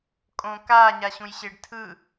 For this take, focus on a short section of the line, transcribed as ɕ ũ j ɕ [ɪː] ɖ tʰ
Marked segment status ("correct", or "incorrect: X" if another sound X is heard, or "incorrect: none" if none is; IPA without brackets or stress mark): correct